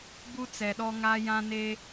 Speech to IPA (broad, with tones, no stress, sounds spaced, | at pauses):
b u˦ t͡s ɛ˨ ɗ ɔ˦ ŋ a˦ j ã˦ n e˦